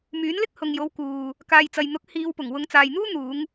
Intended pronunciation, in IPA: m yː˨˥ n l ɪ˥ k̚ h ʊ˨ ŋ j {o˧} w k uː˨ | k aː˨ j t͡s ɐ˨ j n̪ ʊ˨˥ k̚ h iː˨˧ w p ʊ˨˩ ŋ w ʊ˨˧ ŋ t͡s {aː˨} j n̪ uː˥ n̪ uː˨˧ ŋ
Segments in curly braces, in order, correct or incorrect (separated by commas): incorrect, correct